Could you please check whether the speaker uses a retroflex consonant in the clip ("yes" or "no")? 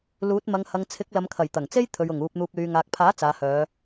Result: no